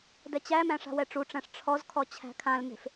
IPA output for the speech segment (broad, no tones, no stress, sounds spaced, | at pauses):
d ɛ t͡ɕ æ m æ̃ ʂ a̤ w ɛ ʈ͡ʂ u ʈ͡ʂ æ̃ ʂ ʈ͡ʂʰ ɔ z kʰ ɔ t͡ɕʰ æ̤ kʰ ã l m e̤ f